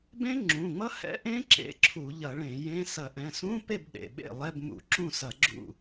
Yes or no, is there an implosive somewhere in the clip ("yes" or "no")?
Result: yes